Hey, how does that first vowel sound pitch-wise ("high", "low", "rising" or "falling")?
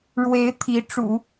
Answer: rising